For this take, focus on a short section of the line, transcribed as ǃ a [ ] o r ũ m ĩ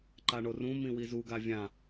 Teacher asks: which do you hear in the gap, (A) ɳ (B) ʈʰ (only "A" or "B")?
A